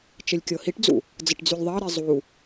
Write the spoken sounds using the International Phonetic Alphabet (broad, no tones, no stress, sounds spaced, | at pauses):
t͡ʃ ə lʲ kʲ ɤ h i ʈ d͡z ṵ | d͡z ə ʈ d͡z y lʲ ðˤ ɑ ɾ i zˤ u